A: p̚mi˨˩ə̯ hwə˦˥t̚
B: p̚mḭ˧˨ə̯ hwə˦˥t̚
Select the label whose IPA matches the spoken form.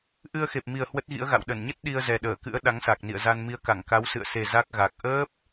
A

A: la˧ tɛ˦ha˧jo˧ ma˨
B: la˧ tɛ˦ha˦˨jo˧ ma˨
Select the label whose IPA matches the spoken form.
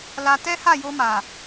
B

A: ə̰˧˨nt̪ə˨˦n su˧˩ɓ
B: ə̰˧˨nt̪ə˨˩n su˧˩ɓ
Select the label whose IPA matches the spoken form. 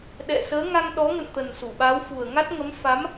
B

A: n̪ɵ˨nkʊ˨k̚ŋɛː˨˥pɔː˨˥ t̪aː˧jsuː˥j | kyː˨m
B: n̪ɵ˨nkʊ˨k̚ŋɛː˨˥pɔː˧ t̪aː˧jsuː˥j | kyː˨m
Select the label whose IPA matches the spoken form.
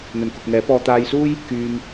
B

